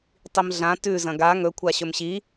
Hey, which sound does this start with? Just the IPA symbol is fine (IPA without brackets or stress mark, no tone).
tˤ